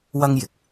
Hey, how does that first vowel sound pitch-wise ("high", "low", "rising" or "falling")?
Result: high